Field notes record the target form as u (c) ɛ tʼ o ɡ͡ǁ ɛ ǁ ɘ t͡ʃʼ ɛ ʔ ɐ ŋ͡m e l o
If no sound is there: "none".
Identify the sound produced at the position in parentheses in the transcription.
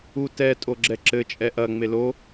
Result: t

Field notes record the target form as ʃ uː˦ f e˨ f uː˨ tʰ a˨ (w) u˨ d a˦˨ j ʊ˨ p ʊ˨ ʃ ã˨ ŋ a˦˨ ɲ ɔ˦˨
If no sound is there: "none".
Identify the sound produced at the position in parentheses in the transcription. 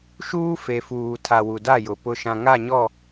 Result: w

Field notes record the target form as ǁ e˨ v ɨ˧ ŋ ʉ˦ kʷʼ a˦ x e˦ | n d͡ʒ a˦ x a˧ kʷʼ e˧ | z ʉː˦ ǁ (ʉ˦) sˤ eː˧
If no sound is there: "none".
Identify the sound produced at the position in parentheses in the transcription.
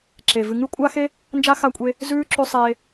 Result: ʉ˧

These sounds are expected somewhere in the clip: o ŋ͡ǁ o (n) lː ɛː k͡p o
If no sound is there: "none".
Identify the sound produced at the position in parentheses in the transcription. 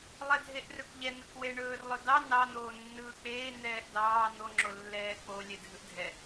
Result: none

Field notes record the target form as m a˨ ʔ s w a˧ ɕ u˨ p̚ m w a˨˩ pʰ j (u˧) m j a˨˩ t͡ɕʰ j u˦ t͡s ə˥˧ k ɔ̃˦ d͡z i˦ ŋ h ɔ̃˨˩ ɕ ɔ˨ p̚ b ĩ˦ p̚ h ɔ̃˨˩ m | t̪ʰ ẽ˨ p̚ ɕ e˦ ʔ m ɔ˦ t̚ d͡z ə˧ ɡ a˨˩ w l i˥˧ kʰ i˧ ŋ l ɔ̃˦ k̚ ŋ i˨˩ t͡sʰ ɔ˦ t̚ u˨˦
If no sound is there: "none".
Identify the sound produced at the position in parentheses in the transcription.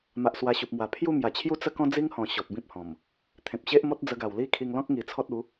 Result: u˥˧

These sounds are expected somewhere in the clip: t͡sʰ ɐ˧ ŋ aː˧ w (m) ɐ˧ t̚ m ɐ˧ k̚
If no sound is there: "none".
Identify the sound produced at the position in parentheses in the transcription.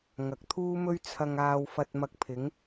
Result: f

